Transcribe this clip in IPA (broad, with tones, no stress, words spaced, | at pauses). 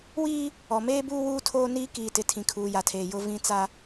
wiː˦ | ɔ˨meː˦buː˦ wuː˦tʰoː˦niː˦ kiː˨tɪ˨ tʰĩ˨kʰuː˨ja˨tʰeː˨ jʊ˦ vĩ˦ t͡sa˦